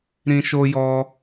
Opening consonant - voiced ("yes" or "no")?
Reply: yes